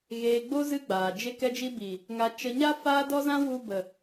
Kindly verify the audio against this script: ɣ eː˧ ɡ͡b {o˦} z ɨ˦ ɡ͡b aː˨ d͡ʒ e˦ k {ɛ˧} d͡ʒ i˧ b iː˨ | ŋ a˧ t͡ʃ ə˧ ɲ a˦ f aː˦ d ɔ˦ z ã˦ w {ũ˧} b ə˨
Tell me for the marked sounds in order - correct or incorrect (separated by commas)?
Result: correct, correct, incorrect